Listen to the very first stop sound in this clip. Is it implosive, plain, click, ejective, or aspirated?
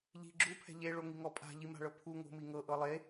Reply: click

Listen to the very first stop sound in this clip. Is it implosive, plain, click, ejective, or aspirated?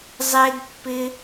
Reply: plain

